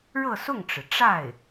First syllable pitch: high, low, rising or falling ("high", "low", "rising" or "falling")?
falling